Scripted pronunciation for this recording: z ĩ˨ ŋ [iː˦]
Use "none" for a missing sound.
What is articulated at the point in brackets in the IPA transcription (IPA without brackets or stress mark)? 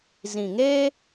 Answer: eː˦